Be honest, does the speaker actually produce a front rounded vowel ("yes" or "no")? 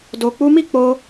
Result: no